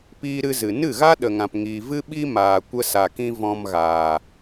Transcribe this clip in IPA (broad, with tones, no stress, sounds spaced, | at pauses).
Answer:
p iː˧ ɾ ɨ˧ z ɨ˨ n ɨ˦˨ ɣ a˦ ɗ ə˨ ŋ ã˨ p ŋ iː˨ v ɨ˦ ɓ i˦ m aː˨ kʷ ə˧ s a˨ k ĩ˧ v ɔ̃˧ m ɣ aː˨